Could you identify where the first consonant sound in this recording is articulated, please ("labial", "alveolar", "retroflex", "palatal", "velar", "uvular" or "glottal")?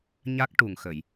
palatal